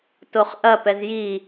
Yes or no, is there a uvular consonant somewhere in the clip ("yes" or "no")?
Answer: yes